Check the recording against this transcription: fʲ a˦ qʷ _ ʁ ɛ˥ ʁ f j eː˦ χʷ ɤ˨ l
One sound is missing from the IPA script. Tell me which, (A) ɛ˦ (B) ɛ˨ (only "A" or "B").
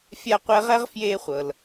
A